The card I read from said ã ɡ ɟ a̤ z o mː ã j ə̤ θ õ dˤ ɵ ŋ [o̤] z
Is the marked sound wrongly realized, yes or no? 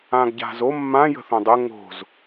no